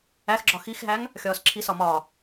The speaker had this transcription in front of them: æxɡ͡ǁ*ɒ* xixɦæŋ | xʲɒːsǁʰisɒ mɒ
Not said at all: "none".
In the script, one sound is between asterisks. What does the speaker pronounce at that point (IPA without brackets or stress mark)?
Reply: ɒ